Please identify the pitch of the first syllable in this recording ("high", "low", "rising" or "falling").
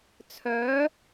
rising